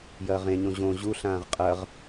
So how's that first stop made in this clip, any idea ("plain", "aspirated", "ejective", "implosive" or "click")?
ejective